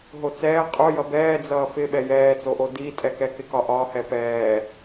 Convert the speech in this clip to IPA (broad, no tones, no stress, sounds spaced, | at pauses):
ɦ o t͡s ɛː qʼ o j ʌ b ɛː d͡z ʌː f ɪ ɓ ɛ j ɛː t͡s o ʔ o d iː tʼ ɛ k ɛ k ɪ k ɒ ʔ ɒ h ɛ p ɛː